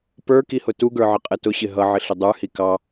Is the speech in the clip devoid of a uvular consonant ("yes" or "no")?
no